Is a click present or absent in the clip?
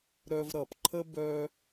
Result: present